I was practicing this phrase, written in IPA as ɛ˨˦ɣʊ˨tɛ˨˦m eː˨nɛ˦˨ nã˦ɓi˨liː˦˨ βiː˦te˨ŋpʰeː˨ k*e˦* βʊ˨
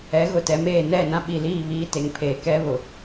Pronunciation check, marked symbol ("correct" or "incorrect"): incorrect